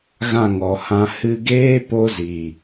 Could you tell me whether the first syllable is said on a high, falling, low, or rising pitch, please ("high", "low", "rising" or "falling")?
falling